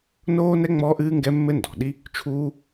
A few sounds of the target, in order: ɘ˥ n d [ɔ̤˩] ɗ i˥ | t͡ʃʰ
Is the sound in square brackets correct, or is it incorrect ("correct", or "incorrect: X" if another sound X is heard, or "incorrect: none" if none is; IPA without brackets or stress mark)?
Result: correct